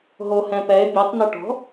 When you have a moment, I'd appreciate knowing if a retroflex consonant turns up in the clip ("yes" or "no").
yes